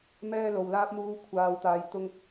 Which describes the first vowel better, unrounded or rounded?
unrounded